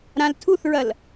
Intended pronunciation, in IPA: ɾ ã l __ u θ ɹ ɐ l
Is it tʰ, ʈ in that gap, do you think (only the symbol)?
tʰ